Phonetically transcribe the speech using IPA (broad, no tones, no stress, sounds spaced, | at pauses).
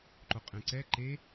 ǃ o qʼ ɛ̃ ǀ ɛ ǃ e